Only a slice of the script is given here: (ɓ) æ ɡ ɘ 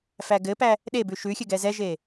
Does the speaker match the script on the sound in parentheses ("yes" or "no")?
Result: no